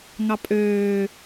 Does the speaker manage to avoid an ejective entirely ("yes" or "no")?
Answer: no